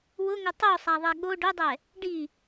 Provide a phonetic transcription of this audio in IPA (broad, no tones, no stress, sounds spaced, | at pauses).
w ʊ ŋ ʊ tˤ o sˤ a ðˤ ɛ ɠ o ɖ ʊ dˤ ɛ | ɖ i